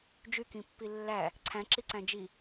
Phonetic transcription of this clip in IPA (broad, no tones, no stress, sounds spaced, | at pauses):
d͡ʒ y k ĩ pː i lː æ | ǀʰ æ̃ ǁ i ǀ æ̃ d͡ʒ i